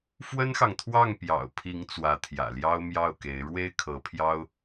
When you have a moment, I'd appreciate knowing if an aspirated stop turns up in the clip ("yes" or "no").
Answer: yes